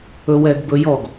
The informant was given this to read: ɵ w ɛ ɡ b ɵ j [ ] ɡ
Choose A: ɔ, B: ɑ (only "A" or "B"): A